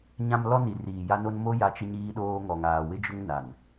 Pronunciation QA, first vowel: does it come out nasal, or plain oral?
nasal